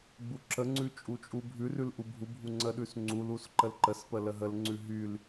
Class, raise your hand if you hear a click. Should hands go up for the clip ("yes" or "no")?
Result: yes